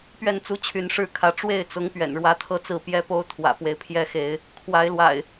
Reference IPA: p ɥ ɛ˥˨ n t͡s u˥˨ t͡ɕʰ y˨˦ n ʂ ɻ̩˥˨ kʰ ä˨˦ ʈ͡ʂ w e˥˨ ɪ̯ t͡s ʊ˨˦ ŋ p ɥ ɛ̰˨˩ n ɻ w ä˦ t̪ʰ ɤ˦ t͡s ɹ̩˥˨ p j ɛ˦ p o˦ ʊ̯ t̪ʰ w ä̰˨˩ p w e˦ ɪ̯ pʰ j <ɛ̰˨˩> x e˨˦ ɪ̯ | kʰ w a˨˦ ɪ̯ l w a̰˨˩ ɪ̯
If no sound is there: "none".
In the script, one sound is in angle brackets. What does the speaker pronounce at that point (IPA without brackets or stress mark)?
ɛ˦